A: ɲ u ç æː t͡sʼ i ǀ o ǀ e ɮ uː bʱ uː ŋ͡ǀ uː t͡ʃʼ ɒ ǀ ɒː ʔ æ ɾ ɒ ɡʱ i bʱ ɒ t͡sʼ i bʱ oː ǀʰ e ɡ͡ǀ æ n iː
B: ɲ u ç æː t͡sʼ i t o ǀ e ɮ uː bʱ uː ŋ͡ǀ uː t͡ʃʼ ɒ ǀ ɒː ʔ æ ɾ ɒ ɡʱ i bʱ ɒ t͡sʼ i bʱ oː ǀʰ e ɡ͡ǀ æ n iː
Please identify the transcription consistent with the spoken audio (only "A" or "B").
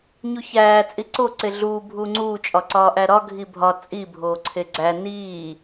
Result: A